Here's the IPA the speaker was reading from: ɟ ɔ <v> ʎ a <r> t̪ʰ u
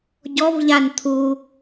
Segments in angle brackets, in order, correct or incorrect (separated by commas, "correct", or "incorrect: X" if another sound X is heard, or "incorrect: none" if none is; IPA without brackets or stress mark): correct, incorrect: n